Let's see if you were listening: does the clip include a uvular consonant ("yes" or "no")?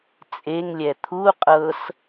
yes